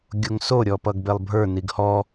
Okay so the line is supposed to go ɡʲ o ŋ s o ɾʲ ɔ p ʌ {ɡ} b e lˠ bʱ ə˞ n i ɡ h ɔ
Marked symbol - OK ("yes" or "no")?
yes